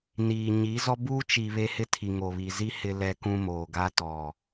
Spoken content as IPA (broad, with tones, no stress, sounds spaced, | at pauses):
n iː˨ ɲ i˨˦ z ɔ˦ b uː˦ t͡ʃ i˨ β e˦ h ɪ˦ tʰ i˨ ŋ o˨ β i˨ z i˦ h ɪ˦ l ɛ˦ k ũ˦ m oː˨ ɡ a˦ t ɔ˨